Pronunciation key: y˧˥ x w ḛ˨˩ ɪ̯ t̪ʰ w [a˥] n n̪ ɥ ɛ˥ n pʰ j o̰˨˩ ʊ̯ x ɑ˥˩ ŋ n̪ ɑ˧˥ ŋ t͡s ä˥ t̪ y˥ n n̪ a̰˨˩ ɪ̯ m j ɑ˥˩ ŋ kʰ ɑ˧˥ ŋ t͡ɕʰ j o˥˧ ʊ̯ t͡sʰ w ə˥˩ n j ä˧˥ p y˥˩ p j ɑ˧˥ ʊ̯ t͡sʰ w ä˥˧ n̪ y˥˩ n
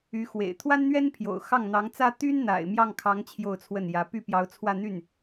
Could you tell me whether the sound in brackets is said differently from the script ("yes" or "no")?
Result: no